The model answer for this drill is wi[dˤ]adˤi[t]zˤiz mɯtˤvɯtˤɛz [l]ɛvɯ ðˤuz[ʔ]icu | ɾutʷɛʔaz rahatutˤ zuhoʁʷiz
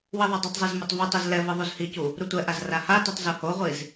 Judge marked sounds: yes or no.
no, no, yes, no

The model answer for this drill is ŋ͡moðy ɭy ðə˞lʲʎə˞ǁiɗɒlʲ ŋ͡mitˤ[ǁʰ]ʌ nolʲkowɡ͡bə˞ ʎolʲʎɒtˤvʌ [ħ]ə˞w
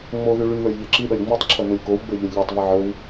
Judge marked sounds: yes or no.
yes, no

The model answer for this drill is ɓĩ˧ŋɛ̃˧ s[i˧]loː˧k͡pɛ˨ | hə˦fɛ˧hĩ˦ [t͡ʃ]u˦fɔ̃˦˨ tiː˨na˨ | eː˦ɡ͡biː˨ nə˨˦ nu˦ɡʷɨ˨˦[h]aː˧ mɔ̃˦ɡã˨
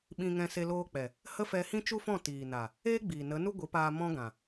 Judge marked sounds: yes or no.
no, yes, no

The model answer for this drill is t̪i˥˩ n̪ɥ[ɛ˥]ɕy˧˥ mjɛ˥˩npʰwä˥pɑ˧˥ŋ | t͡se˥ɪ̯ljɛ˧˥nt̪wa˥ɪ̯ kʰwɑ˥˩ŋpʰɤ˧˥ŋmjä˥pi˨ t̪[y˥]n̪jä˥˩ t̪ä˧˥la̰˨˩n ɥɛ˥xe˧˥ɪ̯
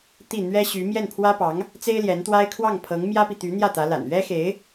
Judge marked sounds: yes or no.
yes, no

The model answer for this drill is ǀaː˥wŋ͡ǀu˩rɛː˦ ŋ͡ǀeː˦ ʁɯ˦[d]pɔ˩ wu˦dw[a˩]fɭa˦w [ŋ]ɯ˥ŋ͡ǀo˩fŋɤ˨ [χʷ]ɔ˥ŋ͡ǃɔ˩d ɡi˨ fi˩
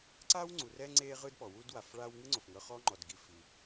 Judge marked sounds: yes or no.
yes, yes, yes, no

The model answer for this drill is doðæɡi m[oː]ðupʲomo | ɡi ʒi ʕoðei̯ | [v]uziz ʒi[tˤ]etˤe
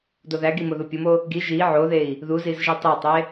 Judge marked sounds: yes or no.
no, no, yes

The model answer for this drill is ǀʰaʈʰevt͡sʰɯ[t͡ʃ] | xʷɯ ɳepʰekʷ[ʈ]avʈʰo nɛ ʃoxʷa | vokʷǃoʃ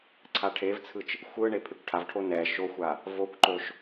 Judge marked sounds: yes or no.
yes, no

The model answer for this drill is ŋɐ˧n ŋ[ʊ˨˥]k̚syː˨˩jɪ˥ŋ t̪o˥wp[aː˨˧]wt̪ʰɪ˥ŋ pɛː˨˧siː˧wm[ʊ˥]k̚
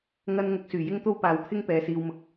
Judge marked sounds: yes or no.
yes, yes, no

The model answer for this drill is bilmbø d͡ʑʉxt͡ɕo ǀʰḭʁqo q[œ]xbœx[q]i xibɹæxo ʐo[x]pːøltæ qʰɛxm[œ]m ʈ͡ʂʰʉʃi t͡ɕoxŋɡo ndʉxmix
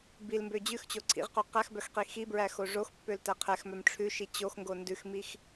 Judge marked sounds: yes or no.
no, yes, yes, yes

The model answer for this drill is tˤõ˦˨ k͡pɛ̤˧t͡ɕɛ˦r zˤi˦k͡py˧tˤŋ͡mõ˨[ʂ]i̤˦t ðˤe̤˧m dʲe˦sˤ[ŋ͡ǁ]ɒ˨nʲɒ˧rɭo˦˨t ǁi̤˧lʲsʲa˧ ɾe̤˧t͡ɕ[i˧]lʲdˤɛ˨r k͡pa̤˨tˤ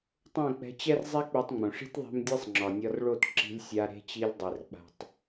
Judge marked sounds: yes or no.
yes, yes, yes

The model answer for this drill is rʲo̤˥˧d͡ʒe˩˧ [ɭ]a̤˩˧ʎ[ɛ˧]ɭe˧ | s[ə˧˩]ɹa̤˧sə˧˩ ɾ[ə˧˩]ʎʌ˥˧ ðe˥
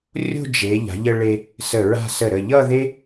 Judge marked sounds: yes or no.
no, no, yes, yes

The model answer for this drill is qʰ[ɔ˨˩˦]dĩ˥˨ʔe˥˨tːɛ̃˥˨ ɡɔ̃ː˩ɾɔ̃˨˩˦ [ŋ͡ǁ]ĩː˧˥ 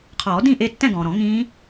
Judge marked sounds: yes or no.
no, no

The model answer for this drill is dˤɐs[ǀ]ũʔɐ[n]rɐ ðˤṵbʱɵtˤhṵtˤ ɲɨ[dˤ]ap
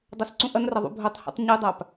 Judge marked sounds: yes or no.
yes, yes, yes

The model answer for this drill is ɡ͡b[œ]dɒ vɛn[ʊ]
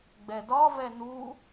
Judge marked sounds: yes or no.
no, no

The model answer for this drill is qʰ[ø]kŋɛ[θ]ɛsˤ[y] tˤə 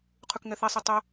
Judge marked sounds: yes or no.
no, yes, no

